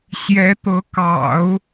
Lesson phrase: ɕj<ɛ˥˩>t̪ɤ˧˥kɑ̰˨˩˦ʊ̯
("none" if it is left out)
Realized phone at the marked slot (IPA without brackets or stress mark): ɛ˧˥